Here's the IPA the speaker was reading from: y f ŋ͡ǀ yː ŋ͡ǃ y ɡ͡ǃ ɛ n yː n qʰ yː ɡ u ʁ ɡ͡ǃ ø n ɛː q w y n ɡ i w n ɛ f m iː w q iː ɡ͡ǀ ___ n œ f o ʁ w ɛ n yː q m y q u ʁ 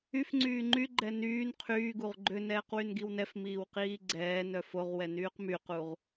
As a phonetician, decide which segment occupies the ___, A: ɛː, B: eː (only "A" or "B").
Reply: A